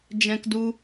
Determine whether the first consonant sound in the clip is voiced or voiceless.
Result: voiced